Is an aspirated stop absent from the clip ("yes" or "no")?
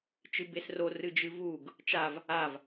yes